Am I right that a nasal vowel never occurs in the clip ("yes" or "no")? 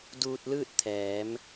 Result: yes